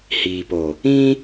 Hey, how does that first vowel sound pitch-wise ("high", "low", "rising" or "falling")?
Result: low